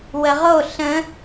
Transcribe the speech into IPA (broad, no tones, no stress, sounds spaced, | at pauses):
w ə ʁ o ɬ ə̃